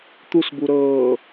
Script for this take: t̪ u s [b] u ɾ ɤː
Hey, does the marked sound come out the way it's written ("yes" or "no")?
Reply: yes